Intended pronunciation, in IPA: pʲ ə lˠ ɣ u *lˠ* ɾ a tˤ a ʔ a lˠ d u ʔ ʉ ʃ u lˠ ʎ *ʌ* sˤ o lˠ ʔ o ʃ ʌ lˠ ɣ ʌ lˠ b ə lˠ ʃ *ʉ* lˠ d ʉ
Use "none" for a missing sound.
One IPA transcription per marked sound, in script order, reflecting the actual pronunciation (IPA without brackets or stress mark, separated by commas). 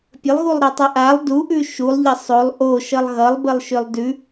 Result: lˠ, ʌ, ø